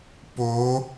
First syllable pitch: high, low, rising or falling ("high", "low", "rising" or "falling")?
rising